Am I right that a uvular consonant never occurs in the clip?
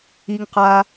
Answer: no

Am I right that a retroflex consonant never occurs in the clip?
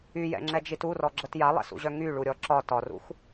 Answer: no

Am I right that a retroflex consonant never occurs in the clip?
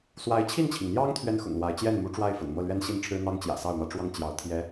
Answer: no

